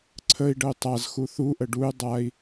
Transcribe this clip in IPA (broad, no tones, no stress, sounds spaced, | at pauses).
ǀʰ ə i̯ ɖ ə y̯ tˤ a z x u θ u ʔ ə ɖ u y̯ dˤ a i̯